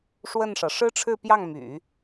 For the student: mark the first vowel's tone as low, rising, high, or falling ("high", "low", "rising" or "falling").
falling